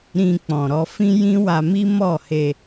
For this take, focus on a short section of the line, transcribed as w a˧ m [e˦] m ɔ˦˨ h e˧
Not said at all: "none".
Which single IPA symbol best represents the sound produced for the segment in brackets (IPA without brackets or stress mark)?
i˦